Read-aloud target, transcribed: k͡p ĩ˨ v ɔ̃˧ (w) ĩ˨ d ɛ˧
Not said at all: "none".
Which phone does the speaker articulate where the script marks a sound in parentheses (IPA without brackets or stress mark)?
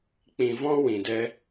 w